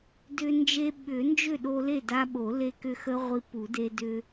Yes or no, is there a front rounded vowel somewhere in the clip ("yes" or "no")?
yes